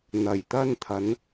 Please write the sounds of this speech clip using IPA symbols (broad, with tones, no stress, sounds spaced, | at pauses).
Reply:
n̪ ɐ˨˩ j t̪ ɐ˧ n t̪ʰ ɐ˨˧ n